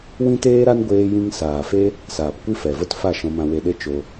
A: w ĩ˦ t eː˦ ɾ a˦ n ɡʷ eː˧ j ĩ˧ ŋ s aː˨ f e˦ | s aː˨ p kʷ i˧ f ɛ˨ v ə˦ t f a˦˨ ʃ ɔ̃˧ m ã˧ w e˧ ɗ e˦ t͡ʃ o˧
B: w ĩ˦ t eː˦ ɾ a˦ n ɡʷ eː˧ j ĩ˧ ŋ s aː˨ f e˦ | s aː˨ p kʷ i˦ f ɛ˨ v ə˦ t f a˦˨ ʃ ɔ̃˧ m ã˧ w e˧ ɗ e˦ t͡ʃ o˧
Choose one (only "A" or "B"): B